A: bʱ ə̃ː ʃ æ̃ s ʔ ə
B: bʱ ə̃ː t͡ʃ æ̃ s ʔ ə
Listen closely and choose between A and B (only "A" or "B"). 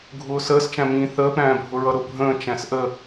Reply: B